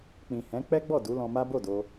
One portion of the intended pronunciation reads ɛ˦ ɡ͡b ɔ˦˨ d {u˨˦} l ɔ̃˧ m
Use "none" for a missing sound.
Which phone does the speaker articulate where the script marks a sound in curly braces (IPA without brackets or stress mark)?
u˨˦